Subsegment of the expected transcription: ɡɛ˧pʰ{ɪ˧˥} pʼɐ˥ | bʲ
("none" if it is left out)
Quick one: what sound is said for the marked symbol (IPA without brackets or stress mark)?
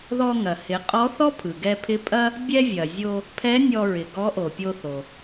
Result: ɪ˧˥